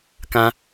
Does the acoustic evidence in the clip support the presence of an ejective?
no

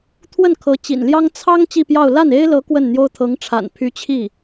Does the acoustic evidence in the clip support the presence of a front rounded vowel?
yes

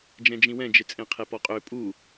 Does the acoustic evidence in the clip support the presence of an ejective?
yes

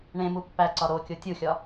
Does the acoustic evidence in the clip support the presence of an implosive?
no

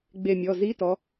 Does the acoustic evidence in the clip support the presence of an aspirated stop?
no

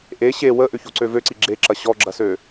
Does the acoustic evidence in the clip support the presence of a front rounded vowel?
yes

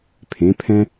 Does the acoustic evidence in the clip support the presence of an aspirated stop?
yes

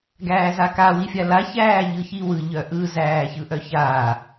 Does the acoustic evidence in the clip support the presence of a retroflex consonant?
no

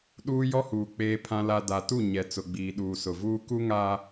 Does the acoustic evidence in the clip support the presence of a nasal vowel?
yes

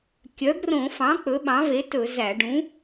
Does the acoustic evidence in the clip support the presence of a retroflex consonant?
yes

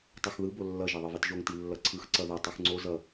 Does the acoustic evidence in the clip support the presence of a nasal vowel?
no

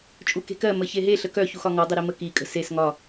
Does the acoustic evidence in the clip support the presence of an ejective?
yes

